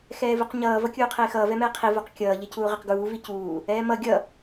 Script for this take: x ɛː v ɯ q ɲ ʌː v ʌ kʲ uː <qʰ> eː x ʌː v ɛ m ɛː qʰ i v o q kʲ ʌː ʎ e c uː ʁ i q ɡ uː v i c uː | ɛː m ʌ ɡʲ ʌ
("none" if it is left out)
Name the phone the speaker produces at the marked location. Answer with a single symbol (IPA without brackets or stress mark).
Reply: qʰ